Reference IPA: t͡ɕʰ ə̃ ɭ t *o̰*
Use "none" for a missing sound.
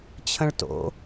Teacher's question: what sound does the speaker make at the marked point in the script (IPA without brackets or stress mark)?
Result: o̰